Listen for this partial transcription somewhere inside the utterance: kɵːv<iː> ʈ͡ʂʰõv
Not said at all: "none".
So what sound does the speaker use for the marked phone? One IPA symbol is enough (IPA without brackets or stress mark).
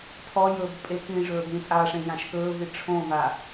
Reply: i